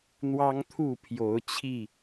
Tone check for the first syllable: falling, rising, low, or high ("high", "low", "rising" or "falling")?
high